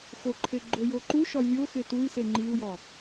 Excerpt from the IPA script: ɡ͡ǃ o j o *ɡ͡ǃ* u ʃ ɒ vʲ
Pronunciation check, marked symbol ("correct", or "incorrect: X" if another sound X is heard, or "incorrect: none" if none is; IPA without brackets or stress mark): incorrect: ǃ